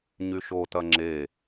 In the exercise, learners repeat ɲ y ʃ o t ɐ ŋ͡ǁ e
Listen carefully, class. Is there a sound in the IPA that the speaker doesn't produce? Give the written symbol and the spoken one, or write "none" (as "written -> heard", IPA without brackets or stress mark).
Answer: none